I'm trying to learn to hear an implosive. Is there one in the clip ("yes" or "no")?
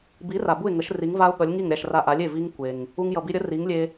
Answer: yes